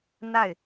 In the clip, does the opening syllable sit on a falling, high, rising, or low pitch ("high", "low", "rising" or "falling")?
falling